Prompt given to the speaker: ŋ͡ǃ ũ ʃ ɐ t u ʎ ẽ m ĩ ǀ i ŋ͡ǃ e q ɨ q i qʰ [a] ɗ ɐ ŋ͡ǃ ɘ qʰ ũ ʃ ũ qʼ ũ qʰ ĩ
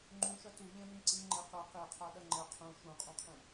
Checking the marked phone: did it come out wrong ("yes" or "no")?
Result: no